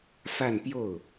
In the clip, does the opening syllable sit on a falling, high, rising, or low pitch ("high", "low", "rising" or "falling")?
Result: falling